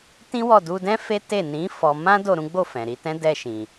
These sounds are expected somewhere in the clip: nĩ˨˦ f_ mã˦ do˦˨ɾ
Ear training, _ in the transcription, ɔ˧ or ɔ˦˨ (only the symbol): ɔ˧